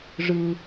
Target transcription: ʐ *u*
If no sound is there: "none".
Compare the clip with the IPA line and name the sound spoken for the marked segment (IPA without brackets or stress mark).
ɯ